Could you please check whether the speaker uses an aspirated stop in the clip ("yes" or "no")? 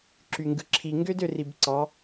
yes